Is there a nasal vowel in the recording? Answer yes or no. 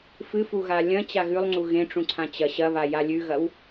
yes